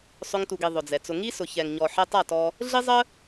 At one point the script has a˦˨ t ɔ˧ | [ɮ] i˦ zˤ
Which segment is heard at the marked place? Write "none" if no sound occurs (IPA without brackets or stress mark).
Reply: ɮ